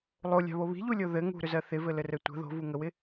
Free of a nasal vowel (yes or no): yes